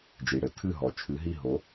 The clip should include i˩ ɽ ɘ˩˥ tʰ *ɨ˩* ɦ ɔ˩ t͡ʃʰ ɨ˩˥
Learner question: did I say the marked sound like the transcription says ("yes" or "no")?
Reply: no